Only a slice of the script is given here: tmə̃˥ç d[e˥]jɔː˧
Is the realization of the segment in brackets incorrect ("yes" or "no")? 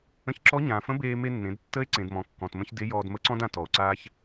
yes